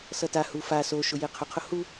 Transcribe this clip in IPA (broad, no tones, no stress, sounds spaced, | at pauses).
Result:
s ʌ t a h u f a s o ʃ ʊ j e qʰ ʊ qʰ ʊ h u